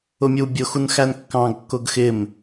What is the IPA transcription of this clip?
ʊ mʲ u bʲ ʊ x u n x æ n kː ɑ̃ ɡ kː ʊ ɡ x ɪ m

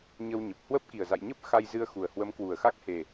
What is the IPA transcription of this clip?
ɲ ə˧ w ɲ ə˨˩ p̚ h w ə˦˥ p̚ k i˨˩ ə̯ z a̰˧˨ j ɲ ə˦˥ p̚ x a˧ j z ɨ˧ ə̯ x u˨˩ ə̯ h w ə˨˦ m k w u˨˩ ə̯ x a˦˥ k̚ h e˨˩

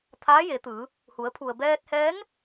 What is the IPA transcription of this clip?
t̪ʰ aː˧˥ j e˩˧ t̪ ɯː˩˧ | h u˩˧ ə̯ pʰ u˩ ə̯ b ɛː˧ t̚ h ɛː˧˥ ŋ

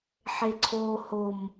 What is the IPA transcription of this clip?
ħ e ǀʰ o h o m

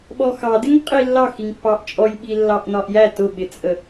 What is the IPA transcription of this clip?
ɓ ɔ x ɑ d ɪ ŋ qʼ i lː ɑ x i ŋ pː ɑ ʔ t͡ʃʼ ɔ j ɓ i lː ɑ ʔ n ɒ ʔ j æ t ʊ ɓ ɪ t͡sʼ ə

